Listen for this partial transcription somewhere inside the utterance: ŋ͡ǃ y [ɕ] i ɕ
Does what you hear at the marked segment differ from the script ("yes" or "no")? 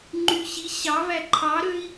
no